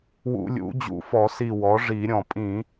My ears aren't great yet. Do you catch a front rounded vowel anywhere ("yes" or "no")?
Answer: no